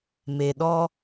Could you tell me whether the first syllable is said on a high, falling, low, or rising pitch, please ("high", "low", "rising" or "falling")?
low